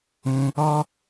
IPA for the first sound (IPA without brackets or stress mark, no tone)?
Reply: ũ